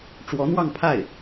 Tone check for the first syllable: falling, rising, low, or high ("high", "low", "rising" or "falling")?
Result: rising